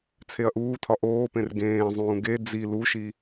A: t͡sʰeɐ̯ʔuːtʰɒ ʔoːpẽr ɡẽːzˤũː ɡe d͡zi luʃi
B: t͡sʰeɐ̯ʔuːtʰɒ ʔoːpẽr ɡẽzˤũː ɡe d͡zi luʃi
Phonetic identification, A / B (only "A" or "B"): A